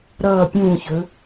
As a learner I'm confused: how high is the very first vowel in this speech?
mid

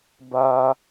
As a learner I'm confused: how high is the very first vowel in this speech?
low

